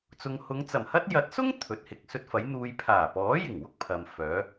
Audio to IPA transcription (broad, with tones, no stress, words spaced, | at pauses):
t͡sʊ˨ŋhʊ˨˧ŋt͡sɐ˨˩mhɐ˥t̚ jɐ˨˥t̚sʊ˥ŋ t̪ʰɵ˨˥t̚hɪ˨k̚sɵ˥t̚ fɐ˨˥jn̪uː˧j pʰaː˨˩pɔː˨˥jɪ˨˩ŋwʊ˥k̚ pʰɐ˨m fœː˨˥